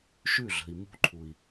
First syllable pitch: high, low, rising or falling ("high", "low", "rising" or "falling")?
falling